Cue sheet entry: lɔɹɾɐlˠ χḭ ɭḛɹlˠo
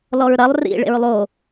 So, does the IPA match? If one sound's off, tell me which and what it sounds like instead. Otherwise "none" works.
χ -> r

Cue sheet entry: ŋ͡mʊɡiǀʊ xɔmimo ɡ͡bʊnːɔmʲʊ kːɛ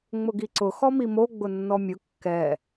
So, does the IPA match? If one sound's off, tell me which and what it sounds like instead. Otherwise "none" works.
none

